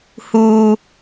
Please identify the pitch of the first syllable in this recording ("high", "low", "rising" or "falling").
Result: low